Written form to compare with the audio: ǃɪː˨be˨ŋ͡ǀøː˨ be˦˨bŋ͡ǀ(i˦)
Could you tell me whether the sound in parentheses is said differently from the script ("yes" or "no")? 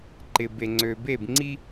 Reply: no